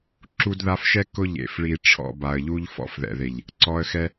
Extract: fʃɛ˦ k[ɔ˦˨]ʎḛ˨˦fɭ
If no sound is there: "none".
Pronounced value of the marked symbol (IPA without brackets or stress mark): ʊ˦˨